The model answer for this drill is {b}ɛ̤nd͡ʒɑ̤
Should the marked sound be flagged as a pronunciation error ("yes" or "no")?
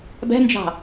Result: no